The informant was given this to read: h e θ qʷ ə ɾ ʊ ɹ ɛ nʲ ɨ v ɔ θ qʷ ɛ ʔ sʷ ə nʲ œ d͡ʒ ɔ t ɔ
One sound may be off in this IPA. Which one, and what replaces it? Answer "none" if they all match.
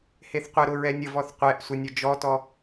ɨ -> ə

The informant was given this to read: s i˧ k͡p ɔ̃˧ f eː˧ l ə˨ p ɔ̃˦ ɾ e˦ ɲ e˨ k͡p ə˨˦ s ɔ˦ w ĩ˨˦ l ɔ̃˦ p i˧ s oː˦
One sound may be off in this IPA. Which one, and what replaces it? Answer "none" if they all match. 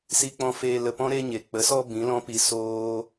w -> b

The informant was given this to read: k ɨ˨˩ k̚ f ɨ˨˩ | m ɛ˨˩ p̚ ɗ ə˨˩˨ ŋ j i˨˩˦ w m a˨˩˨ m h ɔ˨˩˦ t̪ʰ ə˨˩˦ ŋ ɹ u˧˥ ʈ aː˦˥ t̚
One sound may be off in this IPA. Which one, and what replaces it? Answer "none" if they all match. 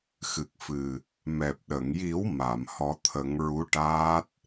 k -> x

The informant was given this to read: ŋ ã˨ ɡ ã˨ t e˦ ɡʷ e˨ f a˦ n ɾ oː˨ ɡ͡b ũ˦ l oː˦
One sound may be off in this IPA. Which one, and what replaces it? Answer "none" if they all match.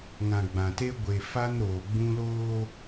ɡ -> ɡ͡b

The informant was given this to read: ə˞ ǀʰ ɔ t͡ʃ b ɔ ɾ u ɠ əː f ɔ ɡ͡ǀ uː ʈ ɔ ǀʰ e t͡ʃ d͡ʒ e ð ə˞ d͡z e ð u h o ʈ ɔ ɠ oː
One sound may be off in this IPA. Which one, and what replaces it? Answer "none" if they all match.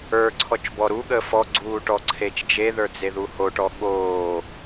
none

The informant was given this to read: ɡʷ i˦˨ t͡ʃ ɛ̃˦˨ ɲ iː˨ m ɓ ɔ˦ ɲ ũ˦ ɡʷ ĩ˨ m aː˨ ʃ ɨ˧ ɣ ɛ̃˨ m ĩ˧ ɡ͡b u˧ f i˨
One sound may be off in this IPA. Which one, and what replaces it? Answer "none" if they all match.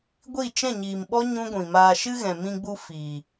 none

